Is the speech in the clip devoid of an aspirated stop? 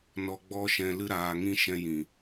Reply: yes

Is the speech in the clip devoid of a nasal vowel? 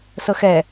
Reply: yes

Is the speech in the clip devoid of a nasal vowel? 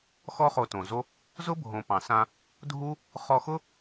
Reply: no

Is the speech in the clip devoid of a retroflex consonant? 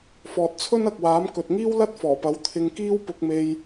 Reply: yes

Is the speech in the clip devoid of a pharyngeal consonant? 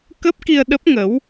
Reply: yes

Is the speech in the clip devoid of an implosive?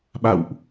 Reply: no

